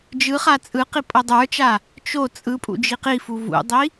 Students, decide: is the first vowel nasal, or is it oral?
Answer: oral